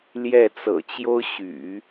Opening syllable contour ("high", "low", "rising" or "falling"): falling